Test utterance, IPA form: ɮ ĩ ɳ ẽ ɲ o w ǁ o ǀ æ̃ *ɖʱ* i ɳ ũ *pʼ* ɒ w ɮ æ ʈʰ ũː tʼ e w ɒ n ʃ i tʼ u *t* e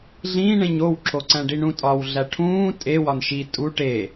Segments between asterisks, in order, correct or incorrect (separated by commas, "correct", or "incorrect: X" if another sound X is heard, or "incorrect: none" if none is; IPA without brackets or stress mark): incorrect: ɖ, incorrect: tʼ, incorrect: ʈ